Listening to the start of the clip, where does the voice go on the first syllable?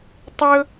high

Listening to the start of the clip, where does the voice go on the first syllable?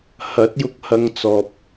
rising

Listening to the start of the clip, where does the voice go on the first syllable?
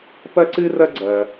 high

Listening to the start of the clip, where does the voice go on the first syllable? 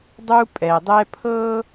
high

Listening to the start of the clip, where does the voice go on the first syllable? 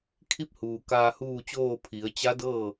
rising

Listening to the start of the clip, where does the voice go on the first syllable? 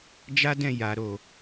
high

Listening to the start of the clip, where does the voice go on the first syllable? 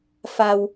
low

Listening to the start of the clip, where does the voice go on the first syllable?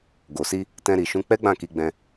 low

